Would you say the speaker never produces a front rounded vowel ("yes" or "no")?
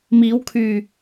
no